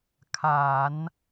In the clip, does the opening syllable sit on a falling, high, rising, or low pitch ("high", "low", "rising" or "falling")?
low